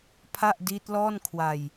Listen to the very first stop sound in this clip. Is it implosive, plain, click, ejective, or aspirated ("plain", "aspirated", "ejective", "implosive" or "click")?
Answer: aspirated